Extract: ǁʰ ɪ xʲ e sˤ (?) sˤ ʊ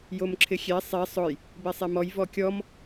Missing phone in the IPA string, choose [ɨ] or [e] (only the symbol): e